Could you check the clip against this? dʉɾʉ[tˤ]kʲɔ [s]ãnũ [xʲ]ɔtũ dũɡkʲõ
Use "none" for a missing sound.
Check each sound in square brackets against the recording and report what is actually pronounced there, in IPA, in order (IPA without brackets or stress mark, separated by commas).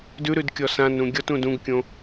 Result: d, s, ɡʲ